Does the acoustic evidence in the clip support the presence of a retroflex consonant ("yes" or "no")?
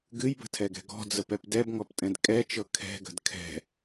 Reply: no